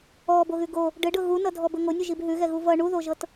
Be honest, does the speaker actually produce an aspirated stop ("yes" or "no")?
no